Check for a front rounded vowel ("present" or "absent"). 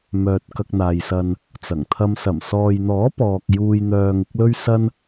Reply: present